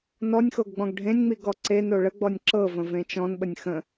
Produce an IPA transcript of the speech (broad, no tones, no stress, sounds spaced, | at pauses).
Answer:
n ɔ nʲ x o ɡ ɡ͡b ɔ̃ ɡ ɖʱ ẽ nʲ ŋ͡m i ɡ ɔ ǀ e n o ɭ ə ɡ͡b ɔ nʲ ǁ ɤ v ə̃ v ẽ t͡ʃ ɔ̃ n ɓ ə nʲ x ə̃